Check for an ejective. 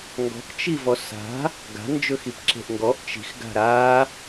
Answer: absent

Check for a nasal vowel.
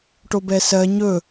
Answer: absent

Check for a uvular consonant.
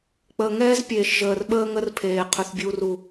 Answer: present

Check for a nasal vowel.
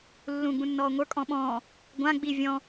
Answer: present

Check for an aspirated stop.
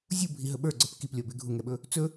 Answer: absent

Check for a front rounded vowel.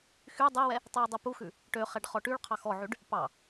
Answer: present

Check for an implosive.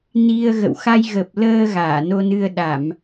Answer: present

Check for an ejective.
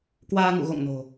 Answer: absent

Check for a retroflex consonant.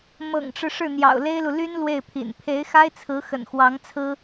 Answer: present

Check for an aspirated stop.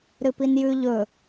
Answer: absent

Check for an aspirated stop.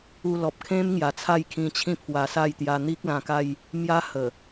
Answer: present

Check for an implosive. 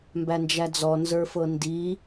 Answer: absent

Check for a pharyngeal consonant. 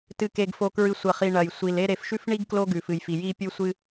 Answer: absent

